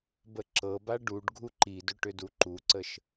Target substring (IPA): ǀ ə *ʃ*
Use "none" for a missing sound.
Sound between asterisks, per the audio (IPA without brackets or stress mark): ʃ